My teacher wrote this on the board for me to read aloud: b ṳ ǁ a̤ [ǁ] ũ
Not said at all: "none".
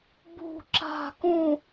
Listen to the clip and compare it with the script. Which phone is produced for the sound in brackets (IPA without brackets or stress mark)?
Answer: k